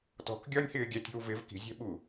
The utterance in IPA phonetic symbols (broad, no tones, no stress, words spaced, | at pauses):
tɔ̤k ɡʲɒnʲhɪː ɡʲætʲ i̤wvɪv ki̤ zʲɛ̤ɓu